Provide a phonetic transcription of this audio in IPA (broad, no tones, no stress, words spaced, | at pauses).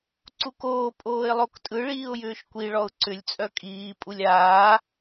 ǀukoː pʼoːɪ̯lˠoktʼɯ ɭiːʊ̯jʏːʃkʷi ɭɔʊ̯ǀʏlʲ t͡sʼœkʼiː pʼulʲaː